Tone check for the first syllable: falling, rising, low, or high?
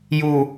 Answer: low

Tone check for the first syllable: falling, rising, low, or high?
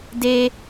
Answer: low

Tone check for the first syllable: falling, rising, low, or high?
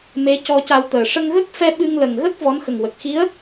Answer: rising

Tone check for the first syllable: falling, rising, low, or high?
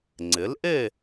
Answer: rising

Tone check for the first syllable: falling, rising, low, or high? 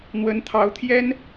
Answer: rising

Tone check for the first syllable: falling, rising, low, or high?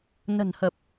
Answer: low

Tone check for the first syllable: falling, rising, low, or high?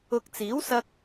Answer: low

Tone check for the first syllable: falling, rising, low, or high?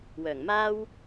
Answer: low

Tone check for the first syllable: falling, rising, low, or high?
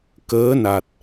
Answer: rising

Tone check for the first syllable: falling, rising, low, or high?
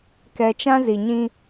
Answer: low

